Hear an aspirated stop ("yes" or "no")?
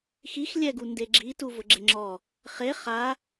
no